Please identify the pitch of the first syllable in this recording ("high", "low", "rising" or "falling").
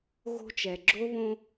high